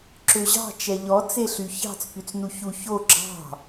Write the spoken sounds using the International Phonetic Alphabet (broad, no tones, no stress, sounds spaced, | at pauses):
ǁ ø ʑ ɑ̤ t͡ʃ ɛ ʎ ɔ t͡s e ɬ y ç ɑ̤ t͡s p y t͡s n u ç u ç o ɡ͡ǁ ɑ̤